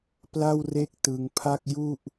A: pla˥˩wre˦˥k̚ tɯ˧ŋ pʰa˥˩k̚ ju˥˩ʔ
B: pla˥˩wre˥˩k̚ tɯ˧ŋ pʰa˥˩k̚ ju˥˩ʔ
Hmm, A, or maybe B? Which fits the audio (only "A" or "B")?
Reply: B